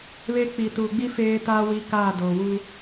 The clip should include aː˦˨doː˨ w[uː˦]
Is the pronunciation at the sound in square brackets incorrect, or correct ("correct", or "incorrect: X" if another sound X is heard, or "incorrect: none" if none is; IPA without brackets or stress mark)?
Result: correct